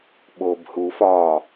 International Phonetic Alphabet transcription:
ɓobhu fɒ

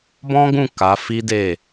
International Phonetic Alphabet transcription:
bɔ̃˦ɡũ˦˨ ka˨˦fi˦ de˦˨

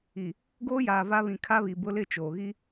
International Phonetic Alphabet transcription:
i˨ | ɡoː˦jaː˨ va˦βĩ˨ kʰa˦βi˨ bʊ˦lɪ˦˨ t͡ʃoː˨ɣi˦

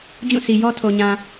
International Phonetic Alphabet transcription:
d͡ʑũ˦˨sʰi˨ jɔ˦tʰo˨ɲã˨

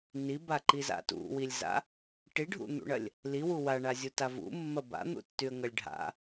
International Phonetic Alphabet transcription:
nibaǃiza̰ tṵwilʲza̰ | ʈiɖʱṵn̪ṵɳɐlʲ | liwu waɳazʲuta vṵmːɐ ba̰n̪ṵtːyə̯ŋɐlʲ ɖʱa̰

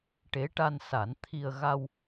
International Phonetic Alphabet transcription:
ʈe˧˥ʈa˧nsa˨˩˦n t̪ʰi˧ə̯ ɣa˧w

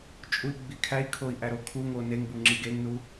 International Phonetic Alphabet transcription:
t͡ʃʼui̯ɡ͡bikʰæi̯kʰoi̯ ʔæɾokʰuŋo neŋbu ŋ͡ǁiɡeŋnu

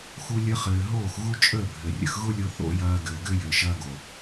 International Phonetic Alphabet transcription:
xu˦lʲə˦χɘː˧ ɦoː˦˨xɣu˦t͡ʃʼəː˦˨bʱɘ˨ rʲə̰˧xɣʊ˦lʲo˧ θo̰˦jɐː˧ ɡɘː˨ɡɘ˦jɘ˨ ʃɐː˦ɡo˨

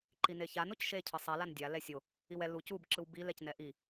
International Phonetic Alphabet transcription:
ǃineçan ocʃe cʰɯsˤɛ landʲa lɛsʲo | iwɛ luc ub ǁɯwbi lɛcnɛʔi

